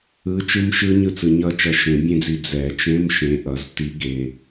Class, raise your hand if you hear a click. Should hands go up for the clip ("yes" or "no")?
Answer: no